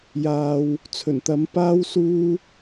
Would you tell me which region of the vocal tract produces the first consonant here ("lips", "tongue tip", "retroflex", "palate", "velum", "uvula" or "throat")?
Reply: palate